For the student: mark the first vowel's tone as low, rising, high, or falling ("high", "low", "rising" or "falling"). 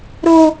high